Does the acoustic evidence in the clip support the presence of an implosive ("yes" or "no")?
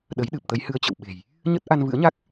yes